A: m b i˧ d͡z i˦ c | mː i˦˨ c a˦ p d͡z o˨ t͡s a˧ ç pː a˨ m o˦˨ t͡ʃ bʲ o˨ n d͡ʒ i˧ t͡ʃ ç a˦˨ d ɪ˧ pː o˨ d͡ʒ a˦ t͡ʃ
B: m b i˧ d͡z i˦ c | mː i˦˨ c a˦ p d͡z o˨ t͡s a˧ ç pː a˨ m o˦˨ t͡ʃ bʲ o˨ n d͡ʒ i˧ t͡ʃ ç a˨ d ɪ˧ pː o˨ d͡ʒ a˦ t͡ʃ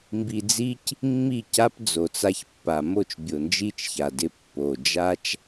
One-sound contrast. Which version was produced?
B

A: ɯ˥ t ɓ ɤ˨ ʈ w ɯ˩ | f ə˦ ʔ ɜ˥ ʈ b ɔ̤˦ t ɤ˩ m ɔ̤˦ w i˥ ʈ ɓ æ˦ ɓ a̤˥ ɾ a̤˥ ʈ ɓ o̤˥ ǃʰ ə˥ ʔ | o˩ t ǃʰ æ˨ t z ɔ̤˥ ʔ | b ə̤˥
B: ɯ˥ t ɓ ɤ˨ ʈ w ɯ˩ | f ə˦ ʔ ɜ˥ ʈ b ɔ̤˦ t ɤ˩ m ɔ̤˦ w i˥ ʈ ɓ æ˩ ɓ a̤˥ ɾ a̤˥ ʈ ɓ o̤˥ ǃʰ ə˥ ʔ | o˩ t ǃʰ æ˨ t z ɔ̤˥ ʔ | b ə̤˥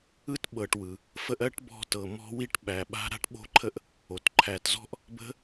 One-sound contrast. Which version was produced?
B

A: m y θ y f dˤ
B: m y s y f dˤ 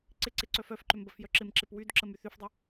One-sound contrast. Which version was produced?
A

